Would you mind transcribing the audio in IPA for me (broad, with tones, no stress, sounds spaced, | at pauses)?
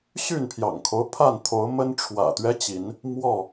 ɕ y˥˨ n pʰ j ɑ̰˨˩ ŋ kʰ o˦ ʊ̯ pʰ a˥˨ n t̪ʰ o˨˦ ʊ̯ m ə˦ n ʈ͡ʂʰ w ä̰˨˩ t̪ ɥ ɛ˦ t͡ɕ i˨˦ n | m w ɔ˥˨